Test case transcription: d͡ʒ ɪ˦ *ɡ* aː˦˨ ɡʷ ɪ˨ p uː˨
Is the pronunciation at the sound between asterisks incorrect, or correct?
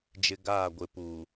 correct